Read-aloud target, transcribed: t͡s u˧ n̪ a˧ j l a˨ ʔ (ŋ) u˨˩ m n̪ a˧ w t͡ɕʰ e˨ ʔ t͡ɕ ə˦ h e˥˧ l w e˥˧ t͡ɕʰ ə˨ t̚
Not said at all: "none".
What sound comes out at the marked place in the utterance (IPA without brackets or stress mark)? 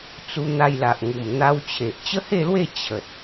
ŋ